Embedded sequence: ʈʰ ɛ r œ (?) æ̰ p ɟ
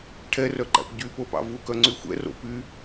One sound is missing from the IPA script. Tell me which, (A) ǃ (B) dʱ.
A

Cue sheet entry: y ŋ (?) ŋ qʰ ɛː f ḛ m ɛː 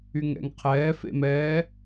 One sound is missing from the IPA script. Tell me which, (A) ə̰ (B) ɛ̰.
B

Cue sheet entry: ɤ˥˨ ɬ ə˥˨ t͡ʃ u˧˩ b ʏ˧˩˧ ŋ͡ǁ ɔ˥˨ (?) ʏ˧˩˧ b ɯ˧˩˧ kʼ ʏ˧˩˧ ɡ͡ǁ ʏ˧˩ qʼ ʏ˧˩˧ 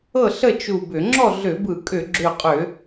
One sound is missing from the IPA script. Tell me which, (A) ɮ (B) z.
A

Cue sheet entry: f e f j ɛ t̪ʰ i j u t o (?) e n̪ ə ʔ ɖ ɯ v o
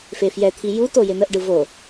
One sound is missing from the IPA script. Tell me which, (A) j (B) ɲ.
A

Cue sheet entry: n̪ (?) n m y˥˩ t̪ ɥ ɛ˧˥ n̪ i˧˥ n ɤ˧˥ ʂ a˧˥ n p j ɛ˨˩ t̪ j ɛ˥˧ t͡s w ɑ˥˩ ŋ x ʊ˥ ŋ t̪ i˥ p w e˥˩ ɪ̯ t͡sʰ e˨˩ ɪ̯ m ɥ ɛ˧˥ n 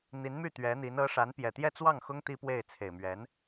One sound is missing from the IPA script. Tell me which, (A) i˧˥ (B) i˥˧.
A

